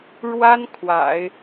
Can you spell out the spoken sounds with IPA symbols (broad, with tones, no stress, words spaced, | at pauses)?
ɻwa˥n kʰwa̰˨˩˦ɪ̯